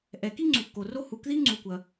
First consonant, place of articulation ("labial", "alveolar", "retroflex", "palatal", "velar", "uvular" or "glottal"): glottal